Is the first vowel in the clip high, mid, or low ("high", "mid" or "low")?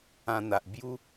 low